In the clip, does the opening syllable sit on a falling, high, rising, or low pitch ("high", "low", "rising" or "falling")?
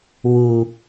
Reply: low